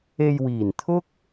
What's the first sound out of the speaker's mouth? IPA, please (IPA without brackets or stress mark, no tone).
e